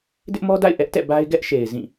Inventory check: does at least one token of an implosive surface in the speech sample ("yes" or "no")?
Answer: no